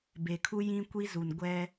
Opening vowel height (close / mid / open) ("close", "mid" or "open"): mid